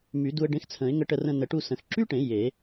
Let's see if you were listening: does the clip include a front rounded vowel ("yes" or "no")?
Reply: yes